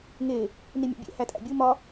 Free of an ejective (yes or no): no